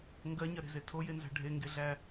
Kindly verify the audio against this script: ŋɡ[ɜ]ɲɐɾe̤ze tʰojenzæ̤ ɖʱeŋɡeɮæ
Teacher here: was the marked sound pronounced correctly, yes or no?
yes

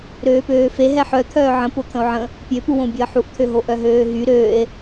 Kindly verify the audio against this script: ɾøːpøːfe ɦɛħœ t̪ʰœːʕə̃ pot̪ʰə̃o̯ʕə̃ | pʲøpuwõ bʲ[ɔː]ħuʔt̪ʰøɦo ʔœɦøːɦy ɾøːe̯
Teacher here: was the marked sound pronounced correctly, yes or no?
no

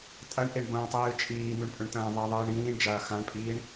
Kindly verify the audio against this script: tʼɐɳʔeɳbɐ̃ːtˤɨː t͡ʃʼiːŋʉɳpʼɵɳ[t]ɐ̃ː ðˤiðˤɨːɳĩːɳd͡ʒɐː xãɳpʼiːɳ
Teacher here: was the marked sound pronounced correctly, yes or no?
yes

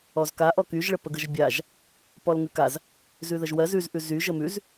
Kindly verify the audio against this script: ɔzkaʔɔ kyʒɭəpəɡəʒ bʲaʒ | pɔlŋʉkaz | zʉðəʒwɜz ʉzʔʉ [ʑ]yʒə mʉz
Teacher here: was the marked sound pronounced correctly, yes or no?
no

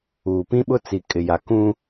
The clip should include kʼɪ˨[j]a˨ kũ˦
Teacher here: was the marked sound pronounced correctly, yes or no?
yes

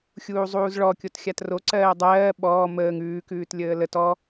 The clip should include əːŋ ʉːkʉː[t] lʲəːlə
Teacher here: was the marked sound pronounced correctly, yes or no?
yes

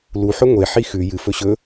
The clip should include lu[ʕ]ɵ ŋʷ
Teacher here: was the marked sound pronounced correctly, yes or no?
no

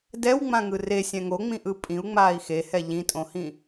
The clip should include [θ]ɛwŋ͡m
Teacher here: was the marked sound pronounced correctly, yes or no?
no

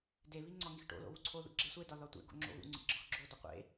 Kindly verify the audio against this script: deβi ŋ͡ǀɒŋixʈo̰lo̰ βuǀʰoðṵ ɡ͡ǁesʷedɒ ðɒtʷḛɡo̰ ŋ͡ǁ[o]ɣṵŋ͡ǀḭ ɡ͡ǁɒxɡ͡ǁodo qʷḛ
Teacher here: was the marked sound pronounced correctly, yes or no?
no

